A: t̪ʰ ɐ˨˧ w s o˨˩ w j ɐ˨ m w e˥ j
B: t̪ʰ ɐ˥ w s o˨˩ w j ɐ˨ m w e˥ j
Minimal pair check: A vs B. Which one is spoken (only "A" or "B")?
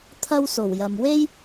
B